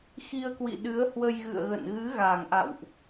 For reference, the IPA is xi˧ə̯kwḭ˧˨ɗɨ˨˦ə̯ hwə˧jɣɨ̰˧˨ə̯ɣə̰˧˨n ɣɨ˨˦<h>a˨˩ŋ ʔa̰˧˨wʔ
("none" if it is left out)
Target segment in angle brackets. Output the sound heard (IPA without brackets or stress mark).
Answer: ɣ